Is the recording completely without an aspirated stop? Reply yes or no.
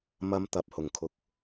no